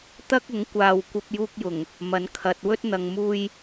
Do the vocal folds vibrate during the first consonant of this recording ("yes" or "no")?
no